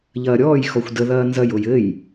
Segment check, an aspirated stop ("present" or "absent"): absent